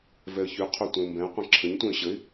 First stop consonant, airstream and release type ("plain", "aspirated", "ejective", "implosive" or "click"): aspirated